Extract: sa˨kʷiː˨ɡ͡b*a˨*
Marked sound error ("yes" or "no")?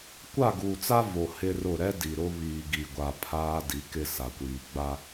yes